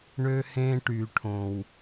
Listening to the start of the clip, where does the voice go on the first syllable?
high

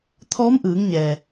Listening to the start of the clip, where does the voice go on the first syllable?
rising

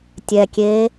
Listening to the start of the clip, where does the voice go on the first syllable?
low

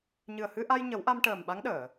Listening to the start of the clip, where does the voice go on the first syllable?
low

